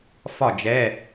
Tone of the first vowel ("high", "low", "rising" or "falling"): falling